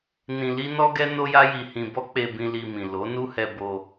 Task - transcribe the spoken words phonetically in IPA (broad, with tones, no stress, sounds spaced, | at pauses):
n ĩ˧ l i˦ n ɔ˦ ɡ ɛ˦ n o˦ j a˦ j i˧ h ĩ˧ b ɔ˦ k͡p e˧ b ĩ˧ l i˧ m ĩ˨ l o˨˦ n u˦ h ɛ˧ b o˧